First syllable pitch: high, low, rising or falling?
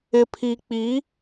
low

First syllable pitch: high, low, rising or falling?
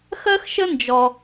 high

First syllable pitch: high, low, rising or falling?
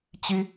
high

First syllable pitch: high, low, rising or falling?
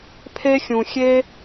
high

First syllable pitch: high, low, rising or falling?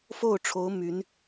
falling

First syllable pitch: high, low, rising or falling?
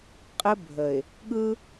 high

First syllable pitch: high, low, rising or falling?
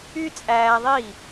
high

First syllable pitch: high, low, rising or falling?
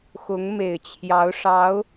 rising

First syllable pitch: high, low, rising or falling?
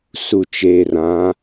low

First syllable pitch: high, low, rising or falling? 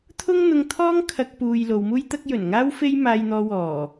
high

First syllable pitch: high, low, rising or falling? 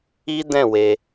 high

